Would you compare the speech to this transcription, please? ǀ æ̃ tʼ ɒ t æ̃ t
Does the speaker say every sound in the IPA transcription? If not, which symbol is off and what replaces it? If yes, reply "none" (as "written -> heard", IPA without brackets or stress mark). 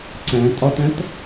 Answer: none